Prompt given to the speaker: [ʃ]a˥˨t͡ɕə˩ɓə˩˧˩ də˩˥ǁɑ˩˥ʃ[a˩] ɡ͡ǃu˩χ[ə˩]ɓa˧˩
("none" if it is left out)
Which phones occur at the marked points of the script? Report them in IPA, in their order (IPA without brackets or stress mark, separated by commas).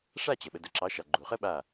ʂ, ɑ˩, ə˦˥